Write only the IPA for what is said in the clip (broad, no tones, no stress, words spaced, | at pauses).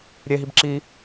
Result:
ɾʲeɦib ǁi